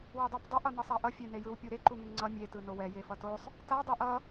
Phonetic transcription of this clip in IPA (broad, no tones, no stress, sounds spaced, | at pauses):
w ɛ dˤ a p dˤ ʌ ʔ ʌ n ʌ sˤ a ʔ ʌ fʲ e n e j ɯ w pʲ u ɾ e ǃ u ŋ e ŋ ŋ͡ǀ ʌ mʲ e t ɯ n o w ɛ j e f ʌ t o sˤ | t a dˤ i ʔ ʌ